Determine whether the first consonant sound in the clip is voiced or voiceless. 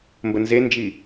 voiced